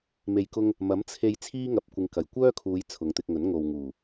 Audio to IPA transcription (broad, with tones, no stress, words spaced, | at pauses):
me˨jkʊ˧ŋ | mɐ˨˥mt͡sʰe˧j t͡sʰiː˥ŋɐ˨p̚kʷɪ˨˧ŋ kɐ˨˩jkʷœː˥kʰuː˨˧j t͡sʰʊ˨˧ŋt̪ɪ˧k̚ŋɵ˨˥n ŋo˨wŋuː˨˩